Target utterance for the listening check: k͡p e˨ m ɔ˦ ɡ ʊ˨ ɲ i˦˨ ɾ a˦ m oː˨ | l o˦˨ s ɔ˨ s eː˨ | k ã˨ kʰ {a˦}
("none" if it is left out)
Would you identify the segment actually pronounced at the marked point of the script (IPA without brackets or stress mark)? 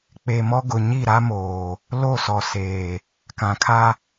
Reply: a˦